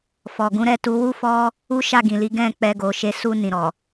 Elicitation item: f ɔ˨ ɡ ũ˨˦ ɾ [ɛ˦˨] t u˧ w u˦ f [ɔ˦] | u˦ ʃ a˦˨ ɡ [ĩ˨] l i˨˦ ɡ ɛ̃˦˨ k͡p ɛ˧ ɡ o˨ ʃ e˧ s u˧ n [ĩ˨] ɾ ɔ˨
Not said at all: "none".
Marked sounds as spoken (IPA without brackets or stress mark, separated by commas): ɛ˦˨, ɔ˦, ĩ˨, ĩ˨